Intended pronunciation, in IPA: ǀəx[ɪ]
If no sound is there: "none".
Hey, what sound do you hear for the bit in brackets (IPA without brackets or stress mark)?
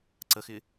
ɪ